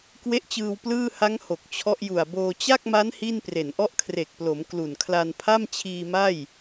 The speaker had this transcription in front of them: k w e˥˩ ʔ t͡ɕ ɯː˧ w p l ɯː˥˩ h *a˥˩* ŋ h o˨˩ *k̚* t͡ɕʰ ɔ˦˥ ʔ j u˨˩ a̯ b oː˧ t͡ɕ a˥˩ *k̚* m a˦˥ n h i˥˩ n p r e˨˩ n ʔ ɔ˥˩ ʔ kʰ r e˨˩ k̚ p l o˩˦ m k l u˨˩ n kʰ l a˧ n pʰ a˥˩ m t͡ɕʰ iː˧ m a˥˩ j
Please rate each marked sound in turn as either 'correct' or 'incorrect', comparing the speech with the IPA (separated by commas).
incorrect, correct, correct